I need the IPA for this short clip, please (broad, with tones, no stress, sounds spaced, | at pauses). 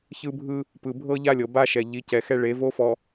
ç ɯ˦ bʱ ɯ˦ | p ɯ˨ bʱ ɤ˦ ʎ a˦ lʲ ɤ˨ b a˦ ʃ ɛ˨ ʎ i˨˦ c ɛ˨ x ɛ˦ ɭ e˨˦ v o˦ f ɔ˨